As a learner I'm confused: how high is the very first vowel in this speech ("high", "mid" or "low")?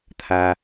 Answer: low